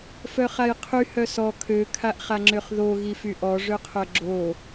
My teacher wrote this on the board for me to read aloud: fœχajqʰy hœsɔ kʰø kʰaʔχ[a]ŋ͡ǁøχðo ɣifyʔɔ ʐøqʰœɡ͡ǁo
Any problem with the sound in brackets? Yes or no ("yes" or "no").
no